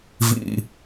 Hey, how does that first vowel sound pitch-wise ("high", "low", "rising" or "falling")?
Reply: low